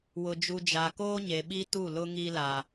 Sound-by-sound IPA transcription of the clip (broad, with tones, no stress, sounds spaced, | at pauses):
w ʊ˨ d͡ʒ u˨ d͡ʒ a˨ k oː˦ ɲ e˨ ɓ i˦ t u˦˨ l ʊ˦ ŋ i˦ l a˦